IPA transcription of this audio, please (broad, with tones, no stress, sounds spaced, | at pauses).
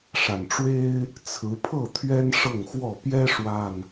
ʂ a˨˩ n ʈ͡ʂ w e˦ ɪ̯ | t͡sʰ ɹ̩˨˦ pʰ ɤ˥˨ t̪ʰ ɥ ɛ˦ n ʂ ɤ˥˨ ŋ x w ɔ˥˨ p j ɛ˦ ʂ w a˨˩ n